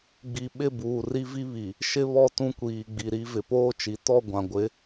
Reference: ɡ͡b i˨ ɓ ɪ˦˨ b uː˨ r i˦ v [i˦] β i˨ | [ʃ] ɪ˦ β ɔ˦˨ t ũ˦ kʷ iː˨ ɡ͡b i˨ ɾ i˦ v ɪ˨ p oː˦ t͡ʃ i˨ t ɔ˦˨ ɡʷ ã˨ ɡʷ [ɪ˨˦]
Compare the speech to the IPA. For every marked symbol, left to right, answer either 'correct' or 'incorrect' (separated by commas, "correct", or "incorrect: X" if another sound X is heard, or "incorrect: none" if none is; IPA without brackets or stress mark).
correct, correct, correct